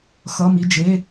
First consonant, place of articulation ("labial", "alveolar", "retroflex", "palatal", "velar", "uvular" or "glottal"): velar